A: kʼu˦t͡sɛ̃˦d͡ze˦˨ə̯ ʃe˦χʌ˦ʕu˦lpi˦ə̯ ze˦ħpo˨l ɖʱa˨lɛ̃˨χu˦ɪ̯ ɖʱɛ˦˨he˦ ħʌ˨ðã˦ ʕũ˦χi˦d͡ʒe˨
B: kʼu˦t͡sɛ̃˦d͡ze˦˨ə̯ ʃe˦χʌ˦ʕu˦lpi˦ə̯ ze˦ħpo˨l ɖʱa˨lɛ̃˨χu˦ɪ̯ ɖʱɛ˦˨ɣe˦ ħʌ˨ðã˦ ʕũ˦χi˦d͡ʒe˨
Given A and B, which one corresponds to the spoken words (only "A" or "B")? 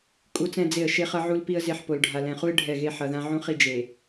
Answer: B